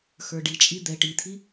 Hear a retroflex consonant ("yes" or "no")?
yes